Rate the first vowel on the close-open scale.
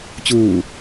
close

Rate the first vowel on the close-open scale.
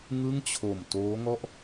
close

